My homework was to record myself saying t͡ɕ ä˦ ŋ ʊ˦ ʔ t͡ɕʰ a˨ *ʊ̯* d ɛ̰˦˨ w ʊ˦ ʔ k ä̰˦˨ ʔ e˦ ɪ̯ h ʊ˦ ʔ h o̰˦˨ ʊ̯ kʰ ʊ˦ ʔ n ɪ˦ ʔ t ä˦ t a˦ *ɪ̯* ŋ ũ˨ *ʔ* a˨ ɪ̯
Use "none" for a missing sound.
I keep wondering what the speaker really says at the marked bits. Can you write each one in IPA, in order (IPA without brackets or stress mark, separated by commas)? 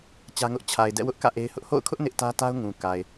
ɪ̯, ʊ̯, k